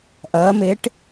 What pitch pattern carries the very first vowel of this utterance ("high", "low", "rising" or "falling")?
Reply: rising